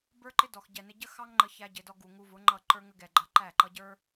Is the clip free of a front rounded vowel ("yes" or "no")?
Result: yes